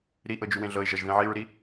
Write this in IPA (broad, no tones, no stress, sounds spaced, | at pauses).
ɾ i ʔ ɤ d͡ʒ y w ẽ ɮ ɤ ɪ̯ ʒ ʌ ʒ ð ẽ ʕ i ɹ ɾ i